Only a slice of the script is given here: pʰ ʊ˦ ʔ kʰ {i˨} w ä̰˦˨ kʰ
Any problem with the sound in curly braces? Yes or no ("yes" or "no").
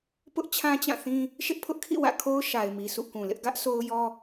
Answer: yes